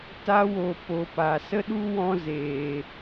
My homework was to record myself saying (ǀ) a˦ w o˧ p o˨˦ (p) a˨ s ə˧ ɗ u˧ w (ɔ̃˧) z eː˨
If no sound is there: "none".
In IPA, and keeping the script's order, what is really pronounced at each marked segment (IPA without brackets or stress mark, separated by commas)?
t, p, ɔ̃˧